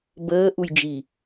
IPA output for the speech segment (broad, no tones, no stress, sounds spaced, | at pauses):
b əː ʔ u j d͡ʒ i